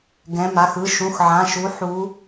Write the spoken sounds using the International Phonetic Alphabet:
ɡ ɛ̃˩˧˩ m a˩˧˩ x ɯ˩˧˩ ʃ ũ˩˧˩ x ʕ ã˩˧˩ ʃ u˨˦ ħ u˨˦

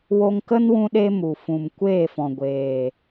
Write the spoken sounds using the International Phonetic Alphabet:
w o˧ ŋ k ə˦ n w ũ˧ ɗ e˧ m u˨ f ũ˨ m kʷ eː˦˨ f ɔ̃˨ ɡʷ eː˨

